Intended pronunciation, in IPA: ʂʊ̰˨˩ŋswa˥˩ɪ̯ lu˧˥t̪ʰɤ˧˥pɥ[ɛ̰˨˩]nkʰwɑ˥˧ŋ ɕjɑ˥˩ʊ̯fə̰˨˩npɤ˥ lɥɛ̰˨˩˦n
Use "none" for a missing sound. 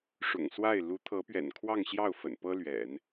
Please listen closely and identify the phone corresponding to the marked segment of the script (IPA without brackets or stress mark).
ɛ̰˨˩